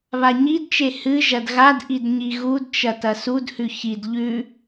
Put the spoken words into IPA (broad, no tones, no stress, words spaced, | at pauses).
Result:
βaɲidt͡ʃe hɨ ʒɐdɣadʔid ɲiɣudt͡ʃɐ tɐsudhʉ çid ʎʉ